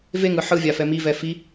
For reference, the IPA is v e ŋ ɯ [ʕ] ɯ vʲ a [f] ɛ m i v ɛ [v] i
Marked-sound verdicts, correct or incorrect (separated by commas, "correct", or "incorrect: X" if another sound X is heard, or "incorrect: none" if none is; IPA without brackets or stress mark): incorrect: ħ, correct, incorrect: f